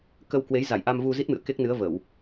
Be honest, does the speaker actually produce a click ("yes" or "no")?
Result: no